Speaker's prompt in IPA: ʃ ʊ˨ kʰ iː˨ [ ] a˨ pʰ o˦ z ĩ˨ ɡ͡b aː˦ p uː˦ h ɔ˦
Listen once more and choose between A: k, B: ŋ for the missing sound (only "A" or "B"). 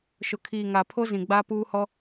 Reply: B